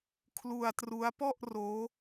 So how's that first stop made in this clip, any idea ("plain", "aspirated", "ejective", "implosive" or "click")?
aspirated